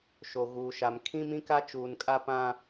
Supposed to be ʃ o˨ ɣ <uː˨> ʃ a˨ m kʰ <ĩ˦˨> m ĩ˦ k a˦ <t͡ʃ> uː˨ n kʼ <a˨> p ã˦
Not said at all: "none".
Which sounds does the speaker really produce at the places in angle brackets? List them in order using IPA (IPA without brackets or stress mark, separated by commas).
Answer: uː˨, ĩ˦, t͡ʃ, a˦